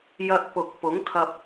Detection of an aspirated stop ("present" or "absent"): present